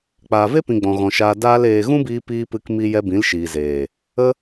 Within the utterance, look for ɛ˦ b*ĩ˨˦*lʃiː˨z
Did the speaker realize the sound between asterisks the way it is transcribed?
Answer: yes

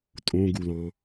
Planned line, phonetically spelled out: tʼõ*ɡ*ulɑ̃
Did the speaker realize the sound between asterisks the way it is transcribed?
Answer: yes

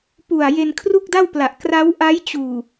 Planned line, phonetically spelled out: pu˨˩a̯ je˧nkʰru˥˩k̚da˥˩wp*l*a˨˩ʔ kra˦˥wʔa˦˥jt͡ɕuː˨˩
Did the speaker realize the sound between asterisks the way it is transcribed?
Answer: yes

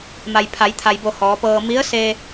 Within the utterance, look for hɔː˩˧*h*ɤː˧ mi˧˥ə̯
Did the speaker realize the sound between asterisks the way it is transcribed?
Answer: no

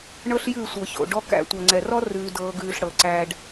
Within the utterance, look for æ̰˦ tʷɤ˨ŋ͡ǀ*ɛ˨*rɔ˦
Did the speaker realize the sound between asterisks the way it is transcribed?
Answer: yes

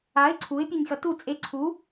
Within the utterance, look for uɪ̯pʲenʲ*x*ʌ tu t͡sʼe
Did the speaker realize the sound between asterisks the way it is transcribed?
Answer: yes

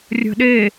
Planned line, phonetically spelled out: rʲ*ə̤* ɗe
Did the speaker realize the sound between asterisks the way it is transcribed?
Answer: yes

